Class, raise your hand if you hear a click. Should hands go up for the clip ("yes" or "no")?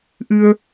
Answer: no